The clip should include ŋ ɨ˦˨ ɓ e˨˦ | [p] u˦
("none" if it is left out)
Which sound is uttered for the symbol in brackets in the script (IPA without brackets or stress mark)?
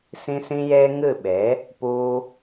p